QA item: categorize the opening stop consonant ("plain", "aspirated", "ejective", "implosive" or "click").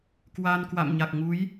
plain